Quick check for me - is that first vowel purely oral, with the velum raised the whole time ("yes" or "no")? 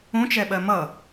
no